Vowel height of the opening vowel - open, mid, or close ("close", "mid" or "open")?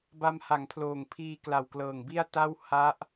open